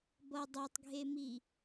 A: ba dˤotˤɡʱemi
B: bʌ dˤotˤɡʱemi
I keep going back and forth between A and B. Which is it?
B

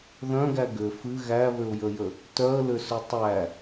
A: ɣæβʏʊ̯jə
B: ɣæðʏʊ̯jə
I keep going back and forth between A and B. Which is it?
A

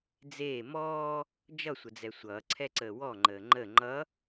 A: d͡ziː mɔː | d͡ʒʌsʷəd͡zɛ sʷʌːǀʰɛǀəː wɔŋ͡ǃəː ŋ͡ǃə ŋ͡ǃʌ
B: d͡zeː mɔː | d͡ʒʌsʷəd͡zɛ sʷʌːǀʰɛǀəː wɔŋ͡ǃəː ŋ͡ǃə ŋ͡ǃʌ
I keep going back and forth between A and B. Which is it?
B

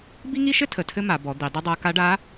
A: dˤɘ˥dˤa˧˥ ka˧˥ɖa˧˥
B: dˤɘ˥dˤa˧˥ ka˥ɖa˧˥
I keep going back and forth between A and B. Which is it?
A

